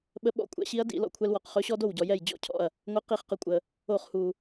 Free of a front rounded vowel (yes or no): yes